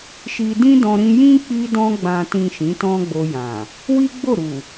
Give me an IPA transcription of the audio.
ʃi˧dĩ˦dɔ̃˧ ɾĩ˧jĩ˦ k͡pi˧dɔ̃˧ɡ͡bã˨tĩ˨ ʃĩ˨˦tɔ̃˦ɡ͡bo˧jã˨ | wi˦ɡ͡bo˦˨ɾu˨

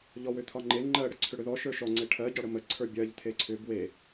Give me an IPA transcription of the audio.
ʎɔwʏt̪ʰɒŋ͡ǃe ŋ͡ǃɜ ɽəǀʰʏɽʏðɔ ʃə˞ʃɔ ŋ͡ǀeʈʰɜ ɟɒɽəmə ǀʰə˞bʲɜʎ t̪ʰeǀʰʏ bwe

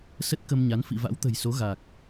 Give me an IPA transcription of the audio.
sə˦˥t̚kə˧mɲa˨˦n fḭ˧˨va̰˧˥wt̪ə̤˨˩jso˨˦ ɣa˨˩k̚

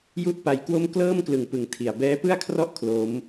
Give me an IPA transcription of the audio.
ju˥˩ʔpa˧jkwo˥˩m klɤː˥˩mklɯ˨˩ŋpɯ˩˦ŋ tʰi˨˩a̯ bɛː˦˥pɯ˥˩a̯kʰrɔ˥˩ʔ kʰlo˦˥m

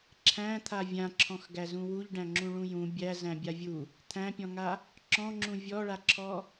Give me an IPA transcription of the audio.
ǁʰæ̃t̪ʰa vʲãǁʰɔ̃xɡæzũ wuʎɖæ̃ŋ͡ǁũɭũ jũ bʲæzæ̃bʲa vʲu | t̪ʰæ̃pʲɔ̃ŋa | ǁɔ̃ŋ͡ǁũ vʲɔɭaǁʰɔ

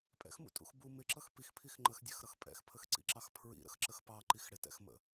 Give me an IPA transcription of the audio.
pʼɛ̰xmṵtʼṵx bu mɪǁʌx pixpʰix ŋ͡ǃəxdʲɛxɾʌx pʼɛ̰xpʰəxǀḭǁɑx pʰɹḭɾə̰xǁəx pɑǃix ɽɪtɛ̰xmə̰

